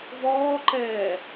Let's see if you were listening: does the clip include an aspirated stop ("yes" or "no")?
no